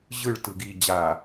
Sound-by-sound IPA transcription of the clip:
ʑ ɯ ɭ t ɯ ɡ i d͡ʑ a

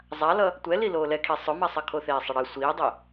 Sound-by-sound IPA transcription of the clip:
zˤ a l ʌ | tʷ ɛ l i l oː l ɛ kʰ i sˤ ʊ m a sˤ ʌ kʰ o θ eː sˤ ə ɽ ɘ sʷ iː dˤ ɘ

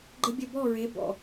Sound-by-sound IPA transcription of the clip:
ɡ͡ǃ ə˦ bʲ ə˦˨ b ɔ˦˨ ɹ e˨˦ b ɔ̰˨

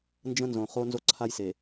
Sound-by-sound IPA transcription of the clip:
n d͡ʒ ə̃˦ n z õ˨ χ o˦ n z o˦ ǀʰ a˦ j s e˨

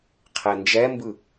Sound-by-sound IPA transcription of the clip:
qʰ e n d͡ʒ ɛ m b ɯ

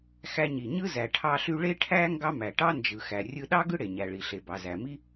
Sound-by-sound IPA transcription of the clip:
x æ˧ ɲ i˩ ɲ ɯ˥ z æ˩ ʈʰ ɑ˧ ɬ y˧ ɭ e˥ ʈʰ æ˥ ŋ ɡ ɑ˥ m æ˩ ʈ ɑ˥ n d͡ʒ ɯ˩ x æ˩ rʲ ɯ˧ ɗ ɑ˥ ɡ ɯ˥ ɽ e˩ ɲ æ˩ ɭ i˩ ɬ e˩ b ɑ˩ z æ˩ m i˥

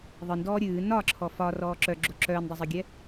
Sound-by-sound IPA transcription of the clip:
ðˤ ɨ n d ɔː ɾʲ ɨː n ɒ ǁʰ ɔ f ɒ r ɔː ǁ œ ɡ͡ǁ o ǁ œː n dˤ ɨ zˤ œ ɡʲ ɛ

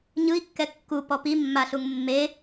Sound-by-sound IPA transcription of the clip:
ɲ ɯ i̯ kː ɛ kː u p ɔ p i mː a ɬ u ŋ mː e

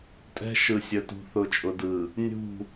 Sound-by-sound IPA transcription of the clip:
tʼ ɛ̤˦ ʃ ɯ˨ sʲ ə˨ t ṳ˨ θ ʊ˨ t͡ʃʼ ʊ˨ d ɯ˨ | nʲ ṳ˦˨

